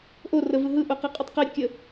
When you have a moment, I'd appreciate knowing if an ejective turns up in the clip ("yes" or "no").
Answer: yes